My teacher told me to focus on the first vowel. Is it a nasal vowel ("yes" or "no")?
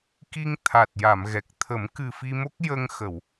no